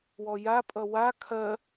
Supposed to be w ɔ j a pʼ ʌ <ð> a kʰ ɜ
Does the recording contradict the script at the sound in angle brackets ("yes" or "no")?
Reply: yes